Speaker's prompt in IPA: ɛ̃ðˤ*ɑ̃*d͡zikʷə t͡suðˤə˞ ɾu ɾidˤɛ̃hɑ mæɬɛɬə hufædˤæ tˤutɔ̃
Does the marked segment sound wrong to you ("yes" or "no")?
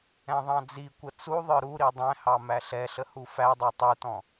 no